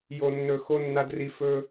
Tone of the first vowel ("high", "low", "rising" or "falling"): low